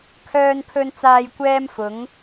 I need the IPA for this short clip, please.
kʰœː˨npʰɵ˨nt͡saː˨j kʷɛː˧mfʊ˨˧ŋ

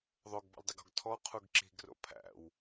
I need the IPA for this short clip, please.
ðˤoɡbɔ̰ldˤɪɡɔ̤ɡ tʰɔqʰuɡ ǁi̤ɡro̰ pʰæ̰w

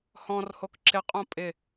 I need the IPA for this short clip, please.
hɔ̃rhok ǁɪqʼõ pʼɪ

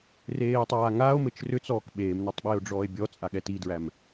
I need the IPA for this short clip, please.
reːtˤaːŋaːo̯mɘt͡ʃ rʏt͡sɔːk ɓeːmnatˤ ɓeːo̯ɖ͡ʐɔːe̯bʲɔt͡sʼa ɠɛtidɹæm

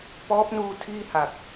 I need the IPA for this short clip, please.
pɔː˦˥p̚nuː˧ tʰiː˥˩ha˨˩k̚

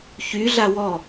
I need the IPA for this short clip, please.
çyɮa wɔ

